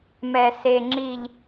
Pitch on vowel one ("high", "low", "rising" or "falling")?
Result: low